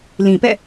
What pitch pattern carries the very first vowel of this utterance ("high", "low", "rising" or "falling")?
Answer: low